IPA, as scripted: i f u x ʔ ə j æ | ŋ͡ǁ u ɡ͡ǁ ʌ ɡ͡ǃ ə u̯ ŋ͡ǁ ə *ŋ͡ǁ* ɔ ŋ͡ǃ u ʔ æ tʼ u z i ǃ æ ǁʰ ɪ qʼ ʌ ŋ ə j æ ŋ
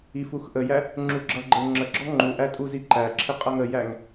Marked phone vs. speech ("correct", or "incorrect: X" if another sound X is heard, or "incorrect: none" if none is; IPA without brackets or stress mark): incorrect: ɡ͡ǁ